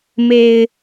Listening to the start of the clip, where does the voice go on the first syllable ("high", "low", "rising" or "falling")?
low